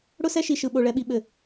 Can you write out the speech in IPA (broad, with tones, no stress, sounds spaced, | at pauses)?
ɽ ʊ˦ s ɛ˦ ʃ i˨ ʃ ɯ˨ ɓ o˨ ɭ ɛ˨ ɓ i˨ ɓ ɘ˨